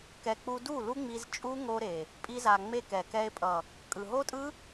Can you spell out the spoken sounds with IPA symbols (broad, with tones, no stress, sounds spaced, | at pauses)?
k ɛ˨ k͡p u˧ d u˦˨ l u˦ ŋ͡m i˧ z t͡ʃʼ u˦ ŋ o˧ ɾ e˨ | pʼ i˧ z a˨ ŋ͡m e˧ k ɛ˨ k ɛ˧ e̯ pʼ ʌ˨ | kʼ ɯ˨ ɦ o˦ tʼ ɯ˦